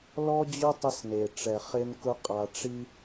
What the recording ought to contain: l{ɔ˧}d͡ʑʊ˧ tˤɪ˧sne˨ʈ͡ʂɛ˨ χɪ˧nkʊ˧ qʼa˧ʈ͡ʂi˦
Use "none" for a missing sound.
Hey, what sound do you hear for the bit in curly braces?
ɔ˧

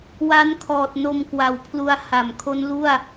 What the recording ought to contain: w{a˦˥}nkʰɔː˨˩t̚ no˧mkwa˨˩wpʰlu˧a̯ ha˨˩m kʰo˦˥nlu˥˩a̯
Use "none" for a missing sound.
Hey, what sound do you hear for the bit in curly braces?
a˦˥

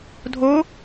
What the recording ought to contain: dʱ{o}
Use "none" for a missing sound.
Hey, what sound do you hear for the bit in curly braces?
o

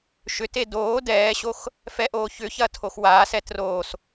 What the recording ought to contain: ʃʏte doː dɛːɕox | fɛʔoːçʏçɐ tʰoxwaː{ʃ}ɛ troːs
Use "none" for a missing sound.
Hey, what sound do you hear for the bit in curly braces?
s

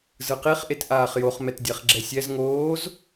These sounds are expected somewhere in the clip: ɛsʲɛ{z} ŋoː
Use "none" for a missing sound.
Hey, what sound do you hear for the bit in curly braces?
z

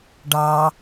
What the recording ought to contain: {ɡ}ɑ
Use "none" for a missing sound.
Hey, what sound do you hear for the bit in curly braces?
ɖ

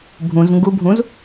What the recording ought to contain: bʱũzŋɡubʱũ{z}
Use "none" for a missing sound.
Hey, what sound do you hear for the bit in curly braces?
z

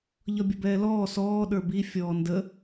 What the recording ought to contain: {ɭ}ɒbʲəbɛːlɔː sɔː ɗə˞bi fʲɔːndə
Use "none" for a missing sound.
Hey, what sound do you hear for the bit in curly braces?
ʎ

